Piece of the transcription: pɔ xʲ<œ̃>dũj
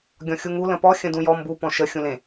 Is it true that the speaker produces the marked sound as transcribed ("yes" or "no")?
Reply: no